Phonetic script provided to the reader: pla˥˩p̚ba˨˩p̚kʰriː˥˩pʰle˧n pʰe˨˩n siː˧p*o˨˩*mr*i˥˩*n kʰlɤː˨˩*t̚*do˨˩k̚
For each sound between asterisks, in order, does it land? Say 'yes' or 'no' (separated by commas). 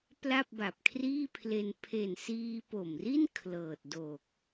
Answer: yes, yes, yes